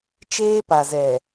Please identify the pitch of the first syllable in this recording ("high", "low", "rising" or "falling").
high